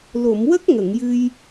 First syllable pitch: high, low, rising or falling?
low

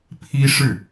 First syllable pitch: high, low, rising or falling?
high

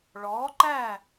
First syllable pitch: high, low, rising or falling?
rising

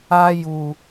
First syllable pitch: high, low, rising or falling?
high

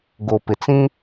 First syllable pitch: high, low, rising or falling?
low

